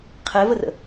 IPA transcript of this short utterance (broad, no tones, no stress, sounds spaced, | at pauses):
qʰ ɛ v ə r ə̰